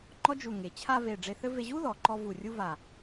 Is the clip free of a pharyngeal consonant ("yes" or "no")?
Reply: yes